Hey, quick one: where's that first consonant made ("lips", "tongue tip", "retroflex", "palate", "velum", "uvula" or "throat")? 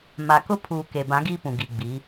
lips